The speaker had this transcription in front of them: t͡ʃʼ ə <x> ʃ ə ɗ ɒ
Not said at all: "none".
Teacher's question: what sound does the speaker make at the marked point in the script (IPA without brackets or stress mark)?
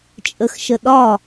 x